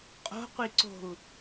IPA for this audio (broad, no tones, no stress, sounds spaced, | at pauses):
qʼ o̤ qʷ i ǀ o̤ u̯